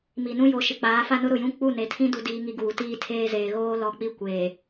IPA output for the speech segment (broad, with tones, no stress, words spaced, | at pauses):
mi˨nũ˦jo˨˦ ʃɪ˨k͡paː˨˦fa˦nʊ˦ ɾʊ˨jũ˦ k͡pu˦˨ne˨tʰĩ˦ du˦diː˦ŋi˦ɡuː˨ tiː˦tʰeː˦zeː˨ ɣoː˦lɔ˨k͡pi˦ kʷeː˨